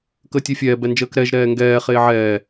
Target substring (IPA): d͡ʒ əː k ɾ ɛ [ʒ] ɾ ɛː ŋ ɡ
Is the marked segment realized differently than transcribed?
no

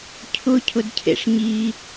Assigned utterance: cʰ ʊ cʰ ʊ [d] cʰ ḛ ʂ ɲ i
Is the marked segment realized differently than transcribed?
no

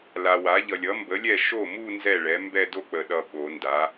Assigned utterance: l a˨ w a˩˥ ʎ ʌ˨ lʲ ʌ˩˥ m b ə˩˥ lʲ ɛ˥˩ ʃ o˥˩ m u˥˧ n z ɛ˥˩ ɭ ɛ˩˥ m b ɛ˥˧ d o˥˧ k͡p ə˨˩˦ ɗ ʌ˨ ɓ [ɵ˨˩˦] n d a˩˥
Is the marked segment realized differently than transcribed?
yes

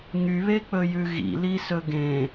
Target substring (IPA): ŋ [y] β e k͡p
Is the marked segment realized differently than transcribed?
no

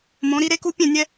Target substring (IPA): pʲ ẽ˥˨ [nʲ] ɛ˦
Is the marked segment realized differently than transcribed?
no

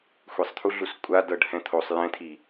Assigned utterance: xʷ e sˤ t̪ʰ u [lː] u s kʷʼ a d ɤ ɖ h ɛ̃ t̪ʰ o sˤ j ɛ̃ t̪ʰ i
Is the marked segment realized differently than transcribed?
yes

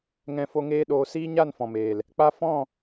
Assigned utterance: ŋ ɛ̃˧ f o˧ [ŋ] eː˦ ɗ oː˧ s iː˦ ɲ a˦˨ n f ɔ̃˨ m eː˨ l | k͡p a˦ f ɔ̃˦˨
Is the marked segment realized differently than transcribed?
no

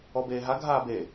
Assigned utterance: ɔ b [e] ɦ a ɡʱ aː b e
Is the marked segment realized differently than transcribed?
yes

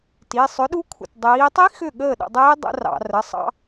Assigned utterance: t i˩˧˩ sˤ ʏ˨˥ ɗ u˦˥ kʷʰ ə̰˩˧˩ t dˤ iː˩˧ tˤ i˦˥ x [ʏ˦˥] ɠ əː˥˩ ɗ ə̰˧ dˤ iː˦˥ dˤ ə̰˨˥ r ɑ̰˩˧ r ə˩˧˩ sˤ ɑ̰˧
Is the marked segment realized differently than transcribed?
yes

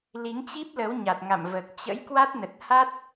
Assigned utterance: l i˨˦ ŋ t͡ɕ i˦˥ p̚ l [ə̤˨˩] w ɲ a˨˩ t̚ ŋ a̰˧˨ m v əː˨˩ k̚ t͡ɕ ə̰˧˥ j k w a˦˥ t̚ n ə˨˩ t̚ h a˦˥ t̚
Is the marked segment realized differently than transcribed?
yes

